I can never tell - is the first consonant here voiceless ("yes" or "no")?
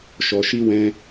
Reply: yes